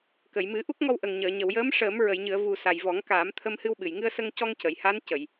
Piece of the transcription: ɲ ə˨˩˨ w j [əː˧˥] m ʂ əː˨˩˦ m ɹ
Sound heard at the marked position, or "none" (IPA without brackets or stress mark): əː˧˥